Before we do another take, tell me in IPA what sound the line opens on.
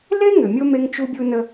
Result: l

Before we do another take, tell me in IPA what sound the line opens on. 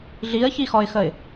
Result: ɮ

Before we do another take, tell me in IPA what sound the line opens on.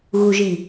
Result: ɣ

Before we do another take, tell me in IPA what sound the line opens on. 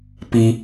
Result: p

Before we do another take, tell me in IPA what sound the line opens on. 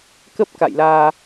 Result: k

